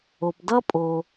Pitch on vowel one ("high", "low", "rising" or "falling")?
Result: low